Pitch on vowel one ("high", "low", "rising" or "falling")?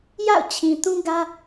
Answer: falling